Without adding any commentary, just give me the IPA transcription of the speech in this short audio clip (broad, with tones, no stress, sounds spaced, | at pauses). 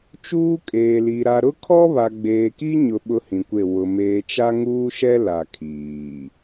t͡ʃ uː˦ kʼ eː˨ l i˨ ɾ a˨ ɾ ʊ˦ kʰ ɔ˦ β a˨ ɡ͡b eː˨ k i˦ ɲ ʊ˨ ɓ ʊ˦ h ĩ˨ kʷ e˦˨ w ʊ˨ m eː˨ t͡ʃ a˦ ŋ uː˦ ʃ ɛ˦ l a˨ kʰ iː˨